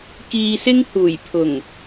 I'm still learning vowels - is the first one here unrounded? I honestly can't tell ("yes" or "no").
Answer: yes